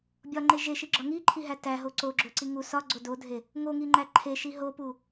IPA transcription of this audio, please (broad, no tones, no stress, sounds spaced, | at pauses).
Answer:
bʲ ɒ ŋ͡ǃ e ʒ e ʃ i ɡ͡ǁ ɒ ŋ i ǃʰ i ɦ æ t æ ɦ o ǀ o ɡ͡ǁ o ǀ i ŋ u s ɒ ɡ͡ǀ o d o dʱ e | ŋ o ŋ i ŋ͡ǃ æ ǃʰ e ʃ i ɦ o p u